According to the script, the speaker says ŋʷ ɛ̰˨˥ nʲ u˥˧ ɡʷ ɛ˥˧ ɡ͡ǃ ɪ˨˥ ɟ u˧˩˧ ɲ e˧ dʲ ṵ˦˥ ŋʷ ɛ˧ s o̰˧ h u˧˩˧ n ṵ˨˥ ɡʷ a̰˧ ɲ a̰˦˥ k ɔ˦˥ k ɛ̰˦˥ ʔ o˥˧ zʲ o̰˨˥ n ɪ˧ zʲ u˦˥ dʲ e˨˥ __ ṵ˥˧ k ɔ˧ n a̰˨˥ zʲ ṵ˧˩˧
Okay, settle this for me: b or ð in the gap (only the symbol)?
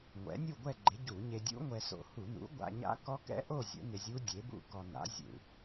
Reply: b